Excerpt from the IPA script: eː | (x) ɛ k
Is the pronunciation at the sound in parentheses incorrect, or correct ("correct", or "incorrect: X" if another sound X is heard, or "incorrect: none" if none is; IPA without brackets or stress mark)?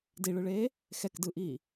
correct